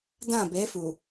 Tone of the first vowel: falling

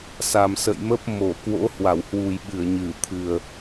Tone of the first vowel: low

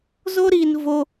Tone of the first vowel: high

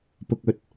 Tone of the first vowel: low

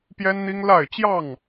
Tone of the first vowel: high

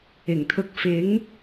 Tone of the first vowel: low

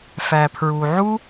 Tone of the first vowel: low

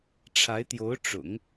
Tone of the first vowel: rising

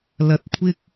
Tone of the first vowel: high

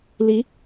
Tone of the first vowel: rising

